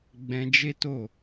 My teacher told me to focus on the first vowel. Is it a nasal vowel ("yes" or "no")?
yes